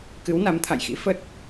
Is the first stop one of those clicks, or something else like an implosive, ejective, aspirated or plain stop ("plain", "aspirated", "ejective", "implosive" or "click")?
plain